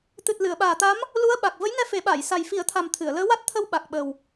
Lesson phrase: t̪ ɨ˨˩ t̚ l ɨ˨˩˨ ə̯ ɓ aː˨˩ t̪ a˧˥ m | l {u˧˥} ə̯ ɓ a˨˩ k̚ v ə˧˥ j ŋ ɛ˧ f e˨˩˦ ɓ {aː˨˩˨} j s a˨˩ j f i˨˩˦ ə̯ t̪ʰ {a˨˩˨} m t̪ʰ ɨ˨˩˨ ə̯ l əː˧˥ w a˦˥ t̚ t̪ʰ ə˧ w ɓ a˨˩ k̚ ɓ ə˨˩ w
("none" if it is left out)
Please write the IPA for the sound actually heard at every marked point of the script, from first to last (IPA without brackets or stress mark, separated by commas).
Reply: u˧˥, aː˨˩˨, a˨˩